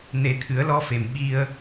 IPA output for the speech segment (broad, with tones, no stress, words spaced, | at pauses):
ne˨˩˦t̪ʰɨ˨˩˦ə̯lɔ˧fe˨˩m ɓi˧ə̯